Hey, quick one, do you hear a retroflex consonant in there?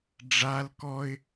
yes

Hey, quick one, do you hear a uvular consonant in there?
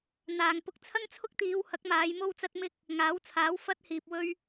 no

